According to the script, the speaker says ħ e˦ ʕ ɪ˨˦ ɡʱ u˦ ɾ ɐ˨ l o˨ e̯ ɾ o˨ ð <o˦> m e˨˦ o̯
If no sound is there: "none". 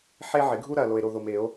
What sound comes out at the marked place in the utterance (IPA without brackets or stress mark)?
o˨